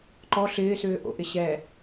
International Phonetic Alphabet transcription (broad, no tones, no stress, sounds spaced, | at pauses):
ǃ ɔ ɬ ɪː s ʏː ʔ o̰ ʔ ɪ ɕ ɛ